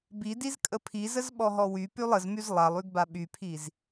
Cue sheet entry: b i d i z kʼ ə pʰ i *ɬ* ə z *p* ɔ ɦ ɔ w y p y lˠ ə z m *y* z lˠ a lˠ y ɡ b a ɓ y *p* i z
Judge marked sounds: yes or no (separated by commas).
no, no, yes, no